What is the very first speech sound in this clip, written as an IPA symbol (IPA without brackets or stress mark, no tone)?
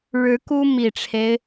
ɻ